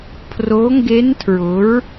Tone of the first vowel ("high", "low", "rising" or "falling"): rising